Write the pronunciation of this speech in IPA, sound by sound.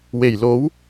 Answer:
w e˨˩ j l o˨˥ w

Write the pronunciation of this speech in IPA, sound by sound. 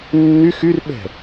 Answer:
nː y x y r ɓ ɛ̤

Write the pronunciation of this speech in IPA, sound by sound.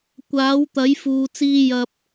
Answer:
kʷ aː˨˥ w t̪ ɐ˨˥ j f uː˧ t͡s iː˥ j ɐ˥ p̚

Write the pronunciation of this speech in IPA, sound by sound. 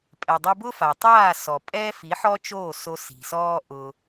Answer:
pʼ ɛ˨ dˤ o˧ b ʊ˦ f a˨ tˤ aː˦˨ s ɔ˨ pʼ ɛː˦ f i˨˦ ħ ɔ˦ t͡ʃ oː˦˨ s o˧ s i̤˨ s ɔː˦ ʔ ʊ˦

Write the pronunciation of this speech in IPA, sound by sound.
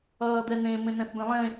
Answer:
ʌː d̪ ɛ n ẽ m ẽ n ɛ̃ θ b ẽ lˠ ẽ

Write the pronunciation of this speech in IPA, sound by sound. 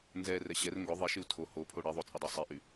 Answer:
n z ɛ r ɛ ɕ ɛ r ŋ ɡ ʊ ðˤ i ʃ ɪ u̯ tʰ o h o pʰ o ɽ i ðˤ o t͡sʼ ɪ dˤ y sˤ i ʔ y

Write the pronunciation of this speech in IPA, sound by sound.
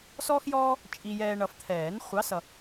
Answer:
s ɔː˦ x j ɔː˦ | t͡ʃʼ i˨ j ɛː˨ ɳ ʌ˨ f t̪ʰ ɛː˨˩˦ n χʷ ɑ˨˥ s ʌ˨

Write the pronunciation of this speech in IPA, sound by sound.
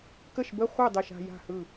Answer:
k ə˥˩ ʃ b ə˥˧ χʷ ɘ˥˩ dˤ e˥˩ ʃ a̤˥˧ j a̤˥˩ h ɯ˥˩

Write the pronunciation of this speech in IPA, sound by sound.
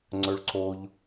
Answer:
ŋ͡ǀ ɵ ɭ ǀ o ʎ

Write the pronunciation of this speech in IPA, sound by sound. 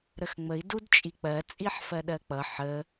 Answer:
ɾ ə x ŋ͡m ə i̯ d u d t͡ʃʼ i k͡p ɜ t͡sʼ i ħ f ɜ ɗ ɜ k͡p ʌ ħ ə

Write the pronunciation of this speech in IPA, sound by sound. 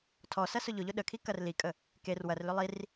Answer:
tʰ ɔ s ɐ s ʊ ʎ ʊ ʎ ʊ ɗ ə kʰ i k ɐ r l i kʼ ə | k e r w ɐ r l ʏ lˠ i r

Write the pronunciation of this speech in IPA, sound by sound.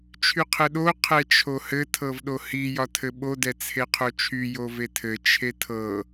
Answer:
t͡ʃʰ y qʰ ɘ ɗ o qʰ ɛ t͡ʃʰ o h ɘ tʰ ɤ v ɗ o h i j ɒ tʰ ɘ ɓ o d ɛ t͡sʰ e qʰ o t͡ʃʰ y j o v e tʰ ɘ t͡ʃʰ e tʰ ɤ

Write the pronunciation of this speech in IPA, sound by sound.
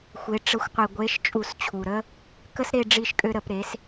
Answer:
xʷ e˩˥ ʈ͡ʂ ə˩˥ xʷ qʷ i˩ ɡʷ e˩˥ ʃ t͡ʃʼ u˧˩˧ s t͡ɕʰ u˩ ɾ ə˦ | k ə˦ s ɾ e˦˨ ɖ͡ʐ i˦˨ ʃ kʼ ø˦ ɾ ə˧˩˧ p ɾ e˩˥ s

